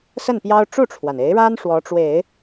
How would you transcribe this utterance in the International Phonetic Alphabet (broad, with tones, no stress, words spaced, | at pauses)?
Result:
sə˥˩npjɑ˥ʊ̯ ʈ͡ʂu˥˩ʈ͡ʂʰwa˩ne˧˥ɪ̯ɻa˥n ʂwɔ˧˥ʈ͡ʂwe˨˩˦ɪ̯